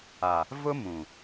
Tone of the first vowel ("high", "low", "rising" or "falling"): low